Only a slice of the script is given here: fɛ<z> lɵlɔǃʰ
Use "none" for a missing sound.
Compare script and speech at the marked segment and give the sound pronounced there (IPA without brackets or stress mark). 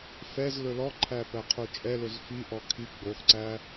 z